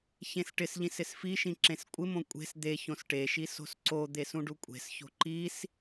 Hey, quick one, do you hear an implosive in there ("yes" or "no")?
no